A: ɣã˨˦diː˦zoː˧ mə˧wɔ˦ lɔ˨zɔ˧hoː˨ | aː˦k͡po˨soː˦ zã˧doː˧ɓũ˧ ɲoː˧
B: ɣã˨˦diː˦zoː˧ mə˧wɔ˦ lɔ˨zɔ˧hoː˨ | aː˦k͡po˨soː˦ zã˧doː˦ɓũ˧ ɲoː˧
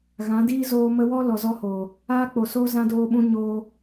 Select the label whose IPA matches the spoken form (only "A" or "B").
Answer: A